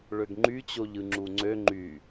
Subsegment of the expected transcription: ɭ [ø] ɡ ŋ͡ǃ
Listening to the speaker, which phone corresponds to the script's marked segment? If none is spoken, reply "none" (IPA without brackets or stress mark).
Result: ø